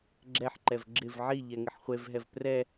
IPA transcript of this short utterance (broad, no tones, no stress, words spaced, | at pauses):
ɡ͡ǁɛħǃɛv ɡ͡ǁɪv ʕiʎɛ ŋɪħχʷevɦɛv prɛ